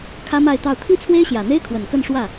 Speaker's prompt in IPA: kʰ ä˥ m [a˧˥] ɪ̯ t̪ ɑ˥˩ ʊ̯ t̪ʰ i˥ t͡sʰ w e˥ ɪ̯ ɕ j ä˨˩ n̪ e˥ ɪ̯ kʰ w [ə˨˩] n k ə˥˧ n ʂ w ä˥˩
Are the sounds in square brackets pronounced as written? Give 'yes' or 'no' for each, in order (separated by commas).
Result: no, yes